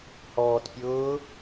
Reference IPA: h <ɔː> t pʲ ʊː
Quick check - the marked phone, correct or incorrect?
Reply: correct